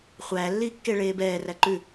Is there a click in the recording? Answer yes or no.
yes